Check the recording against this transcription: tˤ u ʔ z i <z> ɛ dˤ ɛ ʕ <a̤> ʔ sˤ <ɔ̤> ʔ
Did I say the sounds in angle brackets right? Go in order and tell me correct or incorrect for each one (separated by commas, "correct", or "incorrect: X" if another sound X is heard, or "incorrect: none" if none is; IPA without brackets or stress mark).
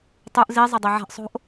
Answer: incorrect: zˤ, correct, incorrect: o̤